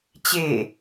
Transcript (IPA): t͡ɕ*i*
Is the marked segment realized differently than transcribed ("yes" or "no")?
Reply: yes